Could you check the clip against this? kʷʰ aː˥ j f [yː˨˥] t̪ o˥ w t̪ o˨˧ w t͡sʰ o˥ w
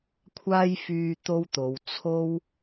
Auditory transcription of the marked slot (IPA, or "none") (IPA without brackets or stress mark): yː˧